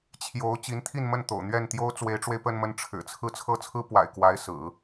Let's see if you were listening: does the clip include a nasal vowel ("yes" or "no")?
no